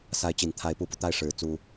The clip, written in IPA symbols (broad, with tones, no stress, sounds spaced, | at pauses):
s a˧˥ ɪ̯ t͡ɕ i˨˩ n t̪ʰ a˧˥ ɪ̯ p u˧˥ p u˧ t̪ a˥˩ ɪ̯ ʂ ɻ̩˨˩ t͡s u˥